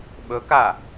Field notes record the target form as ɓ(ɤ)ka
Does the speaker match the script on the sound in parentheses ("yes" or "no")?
no